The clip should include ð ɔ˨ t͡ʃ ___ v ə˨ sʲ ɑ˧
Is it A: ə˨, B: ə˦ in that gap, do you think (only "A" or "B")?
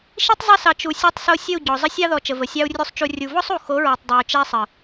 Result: A